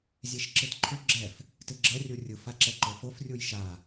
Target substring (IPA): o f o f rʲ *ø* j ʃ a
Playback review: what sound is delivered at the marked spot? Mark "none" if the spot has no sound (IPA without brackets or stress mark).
u